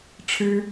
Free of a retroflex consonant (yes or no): no